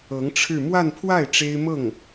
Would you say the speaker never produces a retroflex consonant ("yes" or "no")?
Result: no